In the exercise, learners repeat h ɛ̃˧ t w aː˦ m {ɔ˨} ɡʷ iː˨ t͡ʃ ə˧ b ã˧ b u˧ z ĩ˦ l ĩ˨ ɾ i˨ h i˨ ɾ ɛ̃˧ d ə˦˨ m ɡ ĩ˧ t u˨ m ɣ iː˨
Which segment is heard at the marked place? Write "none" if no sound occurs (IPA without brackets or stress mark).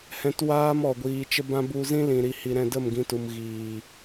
ɔ˨